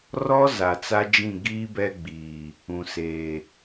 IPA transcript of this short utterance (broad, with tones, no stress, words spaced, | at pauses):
rɔ˦ za˨t͡sa˦d͡ʒĩ˦˨ ɡiː˦bɛ˦ɡ͡biː˨ | ũ˨seː˨